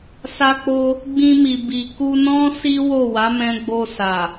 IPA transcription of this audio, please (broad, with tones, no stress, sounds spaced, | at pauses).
s a˦ k͡p o˦ | ɡ͡b ĩ˧ m i˨ b i˨ k u˧ n ɔ̃˦ s i˦ w o˦˨ w a˨˦ m ɛ̃˧ ɡ͡b o˧ s a˨